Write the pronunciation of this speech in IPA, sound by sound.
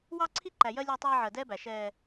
wɑ˦ǀʰi˦ǃæ˨jɜ˦ lʲæ˦tˤɑː˦ ʕɜ˨dɛː˦bæ˨ ʃɛː˦

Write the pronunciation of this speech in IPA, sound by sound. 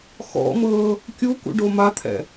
xɔ̰mɤː | kʲukṵɖo mat̪ʰɛ̰

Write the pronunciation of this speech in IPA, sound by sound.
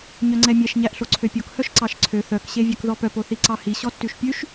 ɲœŋ͡ǀɛmʲɛʃ ɲæʔɬoǀʰøpʲok hœʃǀɑʃǀʰø θœk ɕevʲœkðɔpœp oθiǀɑhi ɕɔtːʉʃpʲʉʃ

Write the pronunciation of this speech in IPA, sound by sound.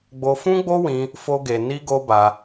ɡ͡bo˧fũ˦ɡ͡bo˦wĩ˧ | fo˦ɡe˧ ni˦ɡo˦ba˧

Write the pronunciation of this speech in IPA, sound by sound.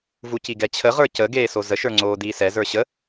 vuciɡɛt͡ɕʰə ʁə˞cə ɡeːsozə ʃə˞ŋ͡ǀoːdiːsɛ zə˞ɕə

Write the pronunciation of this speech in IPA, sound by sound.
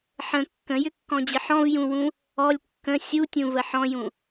ħə̃ kːə̃jʏkːɔ̃d͡ʑə ħɔ̃vjũwũ | ɔlʲ kːə̃ sʲutʲũvə ħɔ̃jũ

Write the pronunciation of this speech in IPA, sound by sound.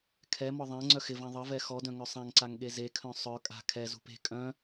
kʰɛmɔ ðˤɛ̃ ŋ͡ǀœxɪvã ðˤəvɛ xɔdœ̃ ŋœsˤãŋǀaŋ ɠezekʰœ̃ sˤœ kʼa̤ kʰɛzṳp e̤ kʼœ̃

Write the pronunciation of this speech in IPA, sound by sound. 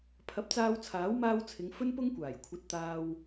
pʰɐ˨˥p̚t͡saː˧w t͡sʰaː˨˥wmaː˧wt͡sʰɪ˨˧ŋ fɵ˥npʊ˥ŋkʷaː˨˩jkʷʰɐ˨˥t̚ t̪aː˨w

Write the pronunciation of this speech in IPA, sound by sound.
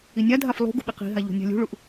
inʲadʱaf lˠṳ ɡṳɓiqi̤ɦa ʎo̤nʲa̤lʲṳɭuʔ

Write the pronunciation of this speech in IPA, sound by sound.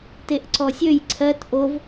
teʔǀɔsʲøj ǀʰɜt ʔov

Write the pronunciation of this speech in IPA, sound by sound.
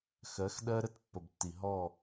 xɜ˨˦xɗɜ˦ ɾə˦tpːə˨btːi˨ ɦɔ˦˨

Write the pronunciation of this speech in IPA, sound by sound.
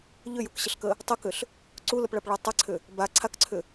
ʎʏjukɕəɬkə | tˤəkʏɬ | ǀuləpɭapɭa tˤaǀʰʏ | ba ǀʰakǀʰʏ

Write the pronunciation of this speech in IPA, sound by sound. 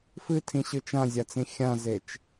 fɨtʰĩɕɯ t͡ʃãzʲat͡sĩ xʲãzet͡ʃ

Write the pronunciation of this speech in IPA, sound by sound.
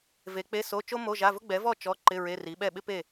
ve˨˥k͡pe˧˥˧so˧˥˧ t͡ʃo˥mo˧˥˧ʒa˧˥˧vʊ˥ ɡ͡bɛ˨˥vɔ˥˨ t͡ʃɔ˧˥˧ǃɪ˧˥˧ ɹe˧˥˧ri˨˥ ɓɛ˥˨ɓɪ˥ pe˥˨

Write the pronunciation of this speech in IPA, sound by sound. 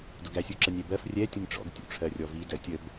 dʊɡæsʲ uǁənʲɛbɜf rʲɛ tʲʊnʲʈ͡ʂɔ̰ɡ tʲṵʈ͡ʂʰɜrʲɔvi dɜtʲəb

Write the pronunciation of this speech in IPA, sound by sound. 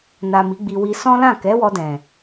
na˨ mi˨˦ɡ͡bi˧wi˧ sɔ̃˦lã˦˨ kɛ˨˦wɔ˧dɛ̃˨

